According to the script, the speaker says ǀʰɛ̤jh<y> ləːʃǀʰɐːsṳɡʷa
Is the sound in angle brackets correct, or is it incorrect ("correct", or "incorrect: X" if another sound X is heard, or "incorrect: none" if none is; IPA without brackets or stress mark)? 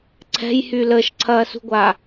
correct